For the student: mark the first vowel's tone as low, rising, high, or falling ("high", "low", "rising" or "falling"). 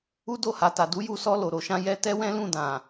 high